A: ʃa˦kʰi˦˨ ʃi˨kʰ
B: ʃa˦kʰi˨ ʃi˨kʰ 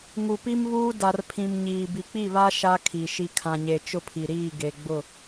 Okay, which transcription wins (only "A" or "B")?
B